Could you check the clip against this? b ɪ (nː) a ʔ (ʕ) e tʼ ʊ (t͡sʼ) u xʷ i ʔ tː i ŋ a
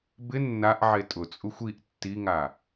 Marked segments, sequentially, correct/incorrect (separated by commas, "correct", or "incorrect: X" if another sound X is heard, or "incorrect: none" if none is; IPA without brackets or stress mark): correct, correct, correct